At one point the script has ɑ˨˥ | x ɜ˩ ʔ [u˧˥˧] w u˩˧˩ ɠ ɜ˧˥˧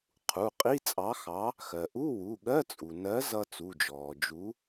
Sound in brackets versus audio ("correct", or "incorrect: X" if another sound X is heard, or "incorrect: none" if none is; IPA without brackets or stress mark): correct